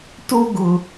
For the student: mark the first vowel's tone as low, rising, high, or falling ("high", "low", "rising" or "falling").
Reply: high